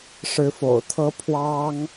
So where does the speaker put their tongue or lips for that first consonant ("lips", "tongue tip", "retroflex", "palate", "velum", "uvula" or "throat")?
retroflex